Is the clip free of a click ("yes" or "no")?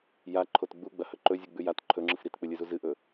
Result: no